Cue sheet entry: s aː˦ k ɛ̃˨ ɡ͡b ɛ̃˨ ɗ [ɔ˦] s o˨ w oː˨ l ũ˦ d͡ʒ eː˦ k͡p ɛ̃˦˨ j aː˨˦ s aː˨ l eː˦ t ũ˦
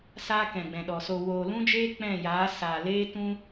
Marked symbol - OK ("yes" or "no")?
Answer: no